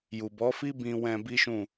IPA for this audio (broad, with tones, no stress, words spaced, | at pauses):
ju˨bɔ˨˦fi˦ bĩ˧wɛ̃˧ bi˦ʃũ˦˨